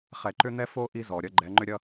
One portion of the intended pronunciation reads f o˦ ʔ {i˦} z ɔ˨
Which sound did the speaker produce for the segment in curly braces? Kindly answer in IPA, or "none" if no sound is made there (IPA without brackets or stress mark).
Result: i˦